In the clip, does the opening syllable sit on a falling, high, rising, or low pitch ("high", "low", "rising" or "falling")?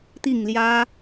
falling